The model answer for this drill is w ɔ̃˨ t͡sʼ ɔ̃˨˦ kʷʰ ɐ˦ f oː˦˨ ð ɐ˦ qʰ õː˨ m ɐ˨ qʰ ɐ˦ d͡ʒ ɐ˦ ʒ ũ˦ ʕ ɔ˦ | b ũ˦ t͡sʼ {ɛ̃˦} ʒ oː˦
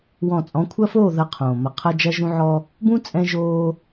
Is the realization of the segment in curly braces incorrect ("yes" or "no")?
no